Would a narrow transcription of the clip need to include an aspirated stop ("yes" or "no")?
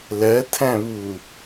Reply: yes